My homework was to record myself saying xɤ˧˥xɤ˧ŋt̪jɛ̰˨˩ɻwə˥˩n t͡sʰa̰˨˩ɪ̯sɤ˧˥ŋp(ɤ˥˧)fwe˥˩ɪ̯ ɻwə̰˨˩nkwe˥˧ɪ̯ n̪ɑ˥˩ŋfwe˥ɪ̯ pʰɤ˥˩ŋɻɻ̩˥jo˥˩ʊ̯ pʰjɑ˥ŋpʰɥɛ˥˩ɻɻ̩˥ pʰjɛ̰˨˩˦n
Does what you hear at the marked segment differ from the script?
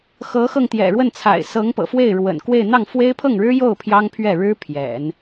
yes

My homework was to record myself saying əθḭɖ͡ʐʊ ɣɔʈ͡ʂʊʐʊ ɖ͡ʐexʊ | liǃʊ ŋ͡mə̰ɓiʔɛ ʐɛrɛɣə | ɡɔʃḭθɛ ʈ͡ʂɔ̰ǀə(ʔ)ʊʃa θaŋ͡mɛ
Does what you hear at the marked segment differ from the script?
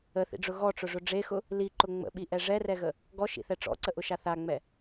no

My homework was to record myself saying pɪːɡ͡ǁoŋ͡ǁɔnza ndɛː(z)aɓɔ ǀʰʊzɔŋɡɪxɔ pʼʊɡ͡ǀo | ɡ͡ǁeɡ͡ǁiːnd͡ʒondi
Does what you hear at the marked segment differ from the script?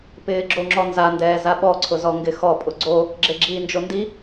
no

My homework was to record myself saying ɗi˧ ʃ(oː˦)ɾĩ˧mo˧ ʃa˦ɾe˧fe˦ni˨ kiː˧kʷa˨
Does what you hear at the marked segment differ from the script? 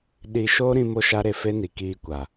no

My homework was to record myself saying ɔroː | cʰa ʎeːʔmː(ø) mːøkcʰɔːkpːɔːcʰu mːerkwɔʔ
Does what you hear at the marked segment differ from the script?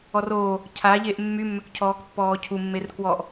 yes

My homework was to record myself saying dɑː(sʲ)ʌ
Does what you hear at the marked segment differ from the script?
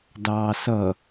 yes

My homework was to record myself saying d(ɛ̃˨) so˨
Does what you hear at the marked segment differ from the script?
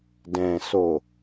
no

